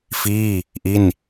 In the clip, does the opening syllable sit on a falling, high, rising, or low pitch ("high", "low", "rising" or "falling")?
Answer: falling